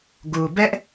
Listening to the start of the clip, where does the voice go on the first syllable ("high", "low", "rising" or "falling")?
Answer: low